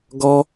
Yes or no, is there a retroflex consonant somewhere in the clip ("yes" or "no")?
no